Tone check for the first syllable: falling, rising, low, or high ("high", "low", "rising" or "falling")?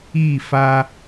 falling